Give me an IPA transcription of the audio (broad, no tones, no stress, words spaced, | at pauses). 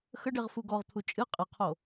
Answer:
xəɖeʁ fuɡɔʁt̪ʰu t͡ʃʼɨ qʼɨqʰo